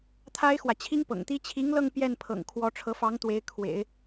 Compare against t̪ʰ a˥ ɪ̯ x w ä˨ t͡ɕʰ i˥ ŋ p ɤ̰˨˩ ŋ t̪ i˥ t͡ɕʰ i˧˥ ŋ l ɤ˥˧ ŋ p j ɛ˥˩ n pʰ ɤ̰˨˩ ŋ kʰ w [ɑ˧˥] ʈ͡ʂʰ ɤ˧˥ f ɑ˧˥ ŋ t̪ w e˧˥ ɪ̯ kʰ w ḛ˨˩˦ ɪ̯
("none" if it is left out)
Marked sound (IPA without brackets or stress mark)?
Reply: ɔ˧˥